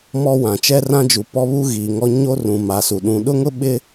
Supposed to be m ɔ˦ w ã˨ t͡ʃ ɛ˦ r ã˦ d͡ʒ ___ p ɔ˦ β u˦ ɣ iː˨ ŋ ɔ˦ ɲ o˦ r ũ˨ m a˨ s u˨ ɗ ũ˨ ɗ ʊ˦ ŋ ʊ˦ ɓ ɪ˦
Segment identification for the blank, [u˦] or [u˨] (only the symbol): u˨